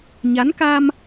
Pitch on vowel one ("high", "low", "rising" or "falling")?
rising